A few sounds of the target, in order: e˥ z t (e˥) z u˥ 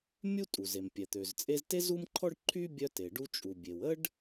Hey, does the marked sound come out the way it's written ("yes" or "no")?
yes